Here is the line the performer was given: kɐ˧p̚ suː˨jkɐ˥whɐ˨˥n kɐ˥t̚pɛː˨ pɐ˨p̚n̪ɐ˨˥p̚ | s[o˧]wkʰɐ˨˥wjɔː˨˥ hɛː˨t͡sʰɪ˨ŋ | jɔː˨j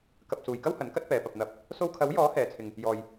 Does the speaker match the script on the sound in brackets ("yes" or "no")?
yes